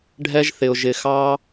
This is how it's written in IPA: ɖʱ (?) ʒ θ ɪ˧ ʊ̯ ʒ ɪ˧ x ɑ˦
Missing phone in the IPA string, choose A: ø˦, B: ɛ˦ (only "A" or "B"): B